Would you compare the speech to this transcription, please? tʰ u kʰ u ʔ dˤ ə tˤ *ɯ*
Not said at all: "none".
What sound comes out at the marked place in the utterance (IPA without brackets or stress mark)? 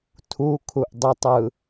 ɯ